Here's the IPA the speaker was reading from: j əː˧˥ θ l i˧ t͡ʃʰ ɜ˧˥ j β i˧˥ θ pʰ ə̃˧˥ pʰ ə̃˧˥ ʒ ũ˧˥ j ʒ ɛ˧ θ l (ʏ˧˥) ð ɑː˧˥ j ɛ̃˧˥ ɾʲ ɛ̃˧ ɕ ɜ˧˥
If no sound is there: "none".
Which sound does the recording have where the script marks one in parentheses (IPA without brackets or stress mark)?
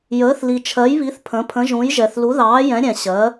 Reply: u˧˥